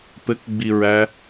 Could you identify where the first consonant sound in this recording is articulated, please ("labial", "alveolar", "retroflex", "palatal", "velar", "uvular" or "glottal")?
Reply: labial